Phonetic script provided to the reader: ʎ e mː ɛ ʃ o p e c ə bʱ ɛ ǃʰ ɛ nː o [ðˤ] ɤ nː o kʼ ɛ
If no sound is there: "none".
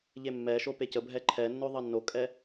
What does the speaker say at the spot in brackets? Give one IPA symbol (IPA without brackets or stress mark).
ðˤ